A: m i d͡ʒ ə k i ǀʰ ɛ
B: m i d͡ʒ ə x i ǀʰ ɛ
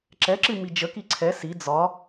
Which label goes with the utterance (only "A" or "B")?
A